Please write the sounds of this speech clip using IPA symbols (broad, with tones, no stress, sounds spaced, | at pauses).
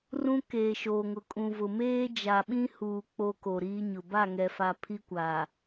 r ũ˦ k eː˨ ʃ oː˨ ŋ ʊ˨ kʼ ũ˨ v ʊ˨ m eː˦ d͡ʒ a˨ ɓ ĩ˦ h uː˨ k͡p o˦ k o˨ ɾ iː˦ ɲ ʊ˨ b a˦˨ ŋ ɛ˨ f a˨ pʰ i˦ kʷ aː˨